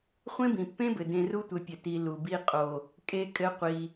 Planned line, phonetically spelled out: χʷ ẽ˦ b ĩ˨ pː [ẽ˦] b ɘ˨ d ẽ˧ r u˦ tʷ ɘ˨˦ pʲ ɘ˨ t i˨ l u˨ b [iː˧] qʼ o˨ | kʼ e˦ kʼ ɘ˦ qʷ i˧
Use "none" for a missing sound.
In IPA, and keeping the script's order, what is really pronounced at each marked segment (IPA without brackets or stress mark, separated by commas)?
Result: ẽ˦, i˧